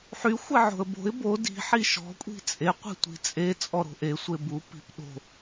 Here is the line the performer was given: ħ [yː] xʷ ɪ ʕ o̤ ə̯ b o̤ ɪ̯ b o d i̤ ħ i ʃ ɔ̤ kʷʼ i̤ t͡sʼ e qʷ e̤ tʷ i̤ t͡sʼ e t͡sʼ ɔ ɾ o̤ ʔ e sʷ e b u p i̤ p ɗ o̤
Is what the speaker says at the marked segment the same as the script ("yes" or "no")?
no